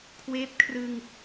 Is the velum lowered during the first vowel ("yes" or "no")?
no